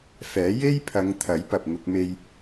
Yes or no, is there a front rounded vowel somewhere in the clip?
no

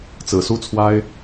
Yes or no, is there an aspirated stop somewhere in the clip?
yes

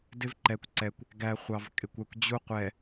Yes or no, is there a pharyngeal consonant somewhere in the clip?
no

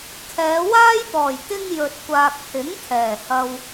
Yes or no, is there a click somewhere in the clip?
no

